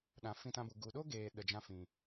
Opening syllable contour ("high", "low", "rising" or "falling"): low